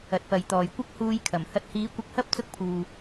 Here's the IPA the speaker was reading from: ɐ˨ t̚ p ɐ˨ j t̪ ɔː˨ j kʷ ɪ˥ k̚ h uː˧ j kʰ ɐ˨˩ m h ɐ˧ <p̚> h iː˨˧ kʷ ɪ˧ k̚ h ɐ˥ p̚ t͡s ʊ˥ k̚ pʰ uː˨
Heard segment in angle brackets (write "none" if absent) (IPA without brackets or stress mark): t̚